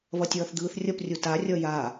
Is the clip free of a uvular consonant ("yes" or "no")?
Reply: yes